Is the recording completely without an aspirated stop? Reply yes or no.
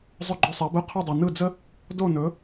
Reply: no